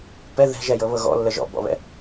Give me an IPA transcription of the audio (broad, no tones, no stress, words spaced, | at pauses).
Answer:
pɛ ðɛ̤ʒɛjɤβɤ ɣɔ̰lːə ʒɔ̰bɔ̰βɛ̰